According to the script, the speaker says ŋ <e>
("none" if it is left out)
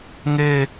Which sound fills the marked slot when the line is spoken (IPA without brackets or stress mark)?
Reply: e